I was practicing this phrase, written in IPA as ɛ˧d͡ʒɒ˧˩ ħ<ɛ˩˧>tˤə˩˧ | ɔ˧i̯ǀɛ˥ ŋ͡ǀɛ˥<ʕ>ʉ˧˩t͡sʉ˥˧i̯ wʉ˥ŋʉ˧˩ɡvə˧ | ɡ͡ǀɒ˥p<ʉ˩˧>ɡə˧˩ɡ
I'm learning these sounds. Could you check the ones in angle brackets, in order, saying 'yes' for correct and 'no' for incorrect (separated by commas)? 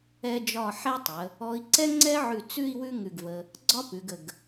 no, yes, yes